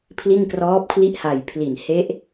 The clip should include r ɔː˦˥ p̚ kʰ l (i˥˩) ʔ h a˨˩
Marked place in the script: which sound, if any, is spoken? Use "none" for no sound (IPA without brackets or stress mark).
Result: i˥˩